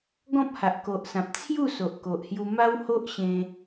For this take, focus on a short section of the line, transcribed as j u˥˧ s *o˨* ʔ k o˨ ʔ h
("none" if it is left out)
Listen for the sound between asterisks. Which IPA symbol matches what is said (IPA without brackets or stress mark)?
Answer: o˨